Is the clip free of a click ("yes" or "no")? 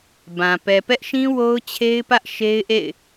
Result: yes